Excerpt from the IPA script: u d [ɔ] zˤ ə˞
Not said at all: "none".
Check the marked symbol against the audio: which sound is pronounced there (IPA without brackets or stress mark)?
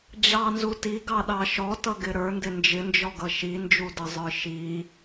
ʌ